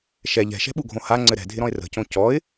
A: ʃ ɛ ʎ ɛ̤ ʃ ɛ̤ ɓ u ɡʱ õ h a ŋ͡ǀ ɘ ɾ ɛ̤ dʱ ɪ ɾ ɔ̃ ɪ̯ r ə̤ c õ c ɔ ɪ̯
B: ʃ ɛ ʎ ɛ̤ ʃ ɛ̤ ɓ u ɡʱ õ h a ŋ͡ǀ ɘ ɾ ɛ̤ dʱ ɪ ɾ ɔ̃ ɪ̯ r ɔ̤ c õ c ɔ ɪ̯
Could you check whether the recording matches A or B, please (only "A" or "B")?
A